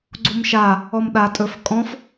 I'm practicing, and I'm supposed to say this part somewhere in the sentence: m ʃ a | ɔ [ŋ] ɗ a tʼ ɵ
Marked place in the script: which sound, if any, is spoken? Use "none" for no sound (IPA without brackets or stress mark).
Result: m